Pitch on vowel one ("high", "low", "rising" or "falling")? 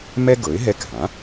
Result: high